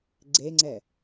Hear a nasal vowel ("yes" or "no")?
no